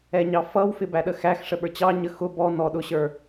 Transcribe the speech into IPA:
ɛ ɲ ɑ f ʌ w f ɪ b æ ɗ ə x æ x ʂ ə ɓ ə˞ t͡ɕ ɑ ɲ ə x ʊ b ɔ n ɔ ɗ ʊ ɕ ə˞

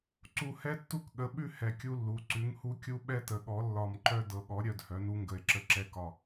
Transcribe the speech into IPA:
ǀ u˧˩ h ɛ˦ tː u˦ k ɠ ə˩˥ ɓ ʉ˦ h ɛ˧˩ kʲ u˦ lː u˩˧˩ ǀ ʉ˩˥ ŋ h u˦ kʲ u˦ ɓ ɛ˦ t ə˩˥ ɠ ɔ˩˥ lː ɒ˧˩ m ǃ œ˦ d ɤ˩˧˩ ɠ ɔ˩˥ ɾʲ œ˩˧˩ d h œ˩˥ n u˦ ŋ ɡ ə˧˩ e̯ ǁ ə˦ ǁ ɛ˦ k ɒ˧˩

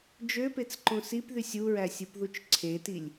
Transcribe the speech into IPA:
d͡ʒ ø p e t͡s ǃ õ s i p ð y sʲ u ɹ æ sʲ ɯ p ð u t͡ʃ ǀʰ e t i lʲ

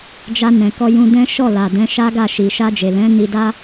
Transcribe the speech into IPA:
d͡ʒ a˧ n ɛ̃˨ k ɔ˧ j ũ˧ d ɛ̃˦ ʃ ɔ˦˨ l a˨ d ɛ̃˨˦ ʃ a˦ ɡ a˦˨ ʃ i˨ ʃ a˧ d͡ʒ e˨ l ɛ̃˨˦ n i˧ d a˦

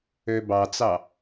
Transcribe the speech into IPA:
ø b ɑ t͡s ɑ

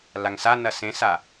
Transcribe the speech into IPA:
l a ŋ s a n ɐ s ẽ s a

